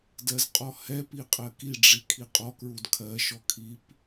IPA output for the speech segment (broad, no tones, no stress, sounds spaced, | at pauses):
d ɜ z qʼ ɔ h ɛ p i qʼ ɜ k i ɖ͡ʐ i kʰ i qʼ ɔ k ɹ u d kʰ ɜ ʃ ɔ kʰ i p